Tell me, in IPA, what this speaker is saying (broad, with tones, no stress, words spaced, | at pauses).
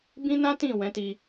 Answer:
bĩ˦nã˦tĩ˦˨ wɛ̃˨˦ti˧